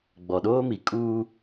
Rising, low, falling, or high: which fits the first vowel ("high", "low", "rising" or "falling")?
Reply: low